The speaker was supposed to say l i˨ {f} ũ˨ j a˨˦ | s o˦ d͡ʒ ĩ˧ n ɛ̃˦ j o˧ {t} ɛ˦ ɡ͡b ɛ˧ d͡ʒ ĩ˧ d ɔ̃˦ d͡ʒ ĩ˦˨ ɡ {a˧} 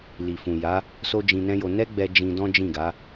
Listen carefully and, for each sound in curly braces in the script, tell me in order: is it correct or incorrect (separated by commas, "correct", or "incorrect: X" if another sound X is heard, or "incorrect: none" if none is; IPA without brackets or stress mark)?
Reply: correct, incorrect: n, incorrect: a˨˦